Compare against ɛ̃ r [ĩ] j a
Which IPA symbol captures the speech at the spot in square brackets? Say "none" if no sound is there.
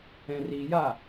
i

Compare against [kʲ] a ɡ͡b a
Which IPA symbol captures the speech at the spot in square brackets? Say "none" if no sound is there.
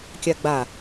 kʲ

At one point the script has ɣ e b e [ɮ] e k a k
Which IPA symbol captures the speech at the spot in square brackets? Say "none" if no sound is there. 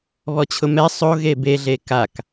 ɮ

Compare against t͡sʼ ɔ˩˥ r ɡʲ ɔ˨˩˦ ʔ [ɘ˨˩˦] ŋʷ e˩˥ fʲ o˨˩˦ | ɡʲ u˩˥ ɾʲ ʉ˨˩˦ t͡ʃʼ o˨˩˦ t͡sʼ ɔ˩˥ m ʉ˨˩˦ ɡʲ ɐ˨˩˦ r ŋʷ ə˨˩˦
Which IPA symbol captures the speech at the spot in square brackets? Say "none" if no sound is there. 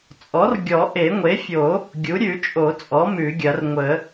e˨˩˦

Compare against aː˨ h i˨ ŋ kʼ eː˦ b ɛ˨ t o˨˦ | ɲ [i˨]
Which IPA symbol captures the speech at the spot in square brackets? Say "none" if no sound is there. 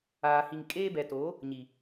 i˨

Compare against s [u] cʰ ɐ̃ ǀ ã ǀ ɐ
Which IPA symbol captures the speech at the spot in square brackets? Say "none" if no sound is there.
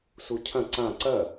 u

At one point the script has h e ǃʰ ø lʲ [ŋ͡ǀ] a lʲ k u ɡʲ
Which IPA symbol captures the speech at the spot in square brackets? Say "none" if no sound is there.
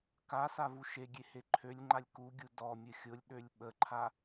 ŋ͡ǃ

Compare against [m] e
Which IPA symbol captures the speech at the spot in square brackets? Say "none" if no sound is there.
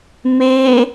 m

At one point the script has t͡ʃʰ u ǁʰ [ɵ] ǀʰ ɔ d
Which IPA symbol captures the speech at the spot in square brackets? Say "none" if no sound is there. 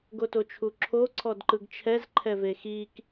o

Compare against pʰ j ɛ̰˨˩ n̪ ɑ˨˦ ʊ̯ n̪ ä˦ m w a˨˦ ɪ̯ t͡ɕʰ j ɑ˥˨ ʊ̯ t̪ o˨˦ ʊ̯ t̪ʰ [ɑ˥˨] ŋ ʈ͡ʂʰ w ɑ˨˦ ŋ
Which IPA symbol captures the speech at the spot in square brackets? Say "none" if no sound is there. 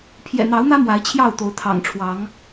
ɑ̰˨˩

